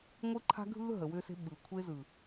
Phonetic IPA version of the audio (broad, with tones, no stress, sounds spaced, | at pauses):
ŋʷ ɯ˦ ǃʰ a̤˦ ɡʱ ɯː˦ ɦ ə˨ w ʏː˧ s e̤˧ ɓ ɯ˨ kʷʰ e˧ z ɯ˨